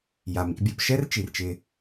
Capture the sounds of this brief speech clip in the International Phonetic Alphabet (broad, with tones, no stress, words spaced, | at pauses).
ja˩mḭ˨bʲo˨pʃɛ˥r t͡ʃi˩rt͡ʃɪ˨